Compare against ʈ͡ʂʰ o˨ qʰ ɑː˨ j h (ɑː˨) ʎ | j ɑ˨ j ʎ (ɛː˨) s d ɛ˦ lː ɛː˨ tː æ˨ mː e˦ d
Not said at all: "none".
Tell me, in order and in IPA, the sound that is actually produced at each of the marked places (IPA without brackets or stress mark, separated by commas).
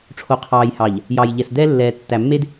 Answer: ɑ˨, ɛ˨